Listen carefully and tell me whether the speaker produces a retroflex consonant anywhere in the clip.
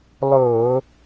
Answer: no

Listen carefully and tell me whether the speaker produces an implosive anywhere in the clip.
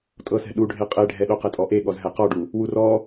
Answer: yes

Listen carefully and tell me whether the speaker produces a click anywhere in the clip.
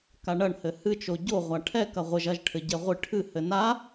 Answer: no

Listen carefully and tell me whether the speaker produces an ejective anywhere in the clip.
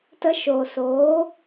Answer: no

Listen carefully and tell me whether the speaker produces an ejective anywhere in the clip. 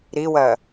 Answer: no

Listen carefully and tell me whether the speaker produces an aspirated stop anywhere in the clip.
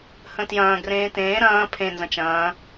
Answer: yes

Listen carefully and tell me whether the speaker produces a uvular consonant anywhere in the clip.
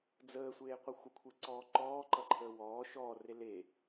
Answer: yes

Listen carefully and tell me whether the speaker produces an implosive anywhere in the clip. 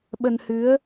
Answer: yes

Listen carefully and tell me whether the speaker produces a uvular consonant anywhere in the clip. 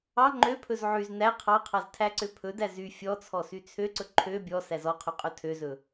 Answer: yes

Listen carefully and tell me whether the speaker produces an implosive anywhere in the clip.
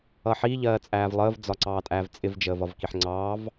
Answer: no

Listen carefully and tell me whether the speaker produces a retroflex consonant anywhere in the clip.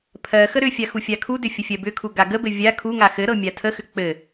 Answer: no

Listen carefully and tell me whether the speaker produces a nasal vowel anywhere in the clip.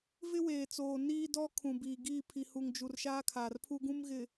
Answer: yes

